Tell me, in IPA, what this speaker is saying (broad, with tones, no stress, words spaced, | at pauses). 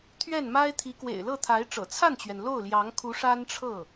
t̪ʰɥɛ˥˩nma˥ɪ̯t̪ʰi˧˥ kwḛ˨˩ɪ̯lɤ˥˩ t̪ʰa˧˥ɪ̯ʈ͡ʂɤ̰˨˩ t͡sʰa˥˩nt͡ɕɥɛ˩n lo˥˩ʊ̯ljɑ˧˥ŋkʰu˧˥ ʂa˥nʈ͡ʂʰɤ˥˩